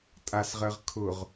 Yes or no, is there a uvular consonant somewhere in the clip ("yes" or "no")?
yes